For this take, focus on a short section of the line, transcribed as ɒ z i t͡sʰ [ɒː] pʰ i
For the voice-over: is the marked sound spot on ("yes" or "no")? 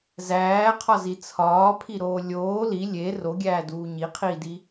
yes